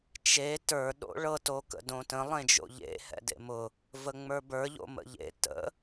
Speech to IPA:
t͡ʃ e t ə˞ ɗ o̰ ɭ ɤ t o k ə̰ d õ t ə̃ lˠ ẽ d͡ʒ o̰ ʎ ḛ h ɛ̰ d ḛ m ʊ | v ə ŋ͡m ə˞ b ə˞ ʎ o̰ m ə̰ ʎ ḛ t ə̰

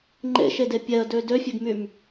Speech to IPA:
ŋ͡ǃ ḛ ʃ e d e pʲ ɛ ə̯ d ø d ø fʲ e ɡ m y m

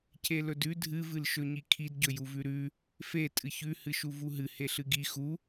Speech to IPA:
c e l ɵ d ʉ dʱ ɨ v ɨ l ʃ ɵ ɲ i kʰ i d ɟ ɵ j u v ʉ ɾ ʉ | f e tʼ ɨ ç ʉ h ɨ ʃ u v u ɦ ɨ h e ɬ ɨ ɡ i x u

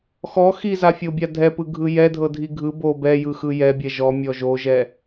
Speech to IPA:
x ɔ x i z a fʲ o bʲ a dʱ ɛ p ɯ ɡʱ ɯ j ɛ dʱ ɤ dʱ i ɡʱ ɯ b o b ɛ j ɯ x ɯ j ɛ bʲ ɛ ʒ ɔ mʲ ɔ ʒ o ʒ ɛ

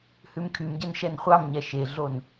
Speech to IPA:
h ʉ m kʰ y m ɟ ɛ n ʃ ɛ n χʷ ɑ m ɲ ɛ ʃ e ɮ o n

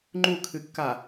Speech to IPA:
ŋ͡ǃ u kʰ ɨ kː a

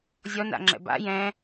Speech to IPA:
zʲ ɔ n a̰ ŋ͡ǁ ɛ̰ b a̰ j ɛ̃

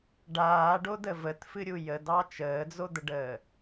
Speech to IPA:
ɖ aː ɖ o d ə v ə t f ɨ ɾʲ u j ə d ɑ t͡ʃ əː d͡z o d̪ ə ɖ əː

